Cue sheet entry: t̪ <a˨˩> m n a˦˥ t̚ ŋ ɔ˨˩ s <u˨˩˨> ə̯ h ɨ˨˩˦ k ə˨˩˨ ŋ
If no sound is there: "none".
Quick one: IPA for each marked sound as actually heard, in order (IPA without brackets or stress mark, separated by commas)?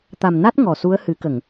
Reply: a˨˩, u˧˥